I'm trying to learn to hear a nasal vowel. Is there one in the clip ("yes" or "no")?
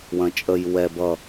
yes